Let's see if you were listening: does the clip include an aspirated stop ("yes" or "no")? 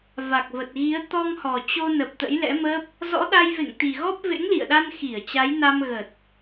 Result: no